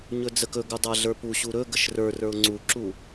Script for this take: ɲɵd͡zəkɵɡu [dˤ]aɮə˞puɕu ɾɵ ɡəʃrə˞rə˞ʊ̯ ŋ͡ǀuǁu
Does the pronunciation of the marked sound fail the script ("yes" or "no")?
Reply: no